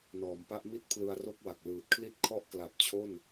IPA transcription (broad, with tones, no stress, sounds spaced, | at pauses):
n ɔː˩˦ m p a˦˥ ʔ m i˥˩ t̚ pʰ l ɯ˧ a̯ r o˥˩ k̚ w a˨˩ k̚ l ɯː˨˩ t̚ kʰ l i˥˩ t̚ kʰ ɔ˥˩ ʔ k l a˨˩ p̚ t͡ɕʰ o˥˩ n